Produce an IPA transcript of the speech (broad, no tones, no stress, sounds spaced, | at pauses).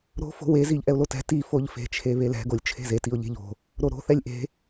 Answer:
ɾ o̤ f o̤ w e z i ʎ ʔ ɛ ʊ̯ l o t ɛ̤ t i f o ʎ f e̤ t͡ʃʰ e β e l ɛ̤ ɡ o lʲ t͡ʃʰ e̤ z e t i ʊ̯ ʎ e̤ ʎ o̤ | ɾ o ɾ o̤ θ ɛ lʲ ʔ e̤